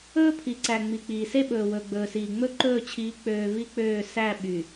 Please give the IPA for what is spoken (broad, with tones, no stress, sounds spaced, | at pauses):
ɵː˦ pʰ i˨ ǀ æ˨ ŋ͡m i˨ k͡p iː˨ s e˦ ɓ ɵː˨ w ɵ˨ ɡ͡b ɵː˨ s iː˨ ŋ͡m ɵ˦ ǃ ɵː˦˨ t͡ɕʰ iː˨˦ k͡p øː˨ v i˦ k͡p øː˦˨ s æ˦˨ ɓ y˨